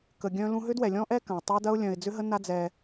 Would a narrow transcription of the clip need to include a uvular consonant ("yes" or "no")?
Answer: no